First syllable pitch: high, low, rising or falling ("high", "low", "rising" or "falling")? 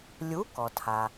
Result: rising